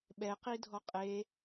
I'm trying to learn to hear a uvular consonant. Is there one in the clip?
yes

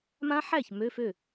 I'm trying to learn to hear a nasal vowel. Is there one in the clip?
yes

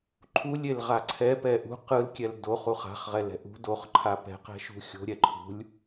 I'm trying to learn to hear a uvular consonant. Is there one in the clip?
yes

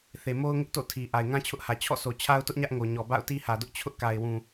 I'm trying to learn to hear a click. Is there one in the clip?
no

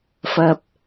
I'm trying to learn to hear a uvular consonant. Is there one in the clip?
no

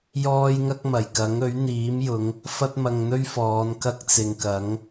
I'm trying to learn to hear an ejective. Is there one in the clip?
no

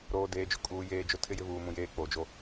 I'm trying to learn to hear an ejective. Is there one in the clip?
yes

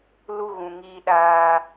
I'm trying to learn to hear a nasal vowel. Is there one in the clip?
yes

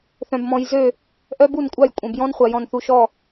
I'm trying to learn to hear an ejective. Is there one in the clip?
yes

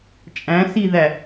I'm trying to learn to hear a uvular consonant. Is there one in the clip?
no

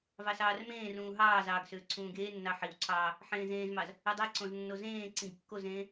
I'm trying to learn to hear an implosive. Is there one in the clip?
no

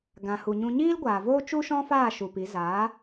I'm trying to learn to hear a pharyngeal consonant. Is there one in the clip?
no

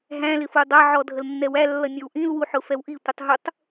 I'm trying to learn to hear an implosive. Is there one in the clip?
no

